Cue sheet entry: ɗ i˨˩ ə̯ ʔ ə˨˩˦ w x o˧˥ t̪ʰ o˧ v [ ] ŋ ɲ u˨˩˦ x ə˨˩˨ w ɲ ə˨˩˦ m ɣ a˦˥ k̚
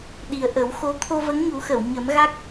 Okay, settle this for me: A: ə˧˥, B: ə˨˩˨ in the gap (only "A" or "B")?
A